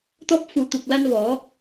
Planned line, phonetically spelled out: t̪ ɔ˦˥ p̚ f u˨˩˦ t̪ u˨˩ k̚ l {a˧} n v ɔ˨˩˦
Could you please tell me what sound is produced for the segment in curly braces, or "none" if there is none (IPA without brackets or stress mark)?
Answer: a˧